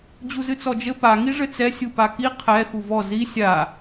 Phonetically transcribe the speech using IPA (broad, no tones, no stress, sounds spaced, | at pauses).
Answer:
d͡ʑ u z ɨ t͡s ɔ d͡ʒ ɘ p a ŋ i ʐ ɘ t͡s ɛ sʲ u p a k i qʰ ɛ x u v ɔ z i sʲ a